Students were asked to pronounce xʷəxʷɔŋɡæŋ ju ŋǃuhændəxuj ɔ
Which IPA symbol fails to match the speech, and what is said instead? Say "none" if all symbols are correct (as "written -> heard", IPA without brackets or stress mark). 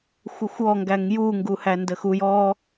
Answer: ǃ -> ɡ